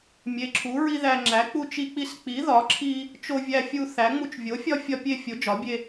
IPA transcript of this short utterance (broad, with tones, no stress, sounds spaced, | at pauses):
mʲ e˨˥ ǁʰ u˨˥ ɹ i˦ ð æ˦ ŋ͡ǁ æ˨˥ k͡p u˦ t͡ʃ i˦ k͡p i˦ s k͡p i˨˥ ð ɒ˨˥ ǁʰ i˦ | t͡ʃ o˦ vʲ æ˦ fʲ u˦ θ æ˨˥ ŋ͡m u˦ t͡ʃ vʲ o˨˥ fʲ ɒ˦ fʲ ɒ˦ pʲ e˦ fʲ o˨˥ d͡ʒ ɒ˨˥ bʲ e˦